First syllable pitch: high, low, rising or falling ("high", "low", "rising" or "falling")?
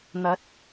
rising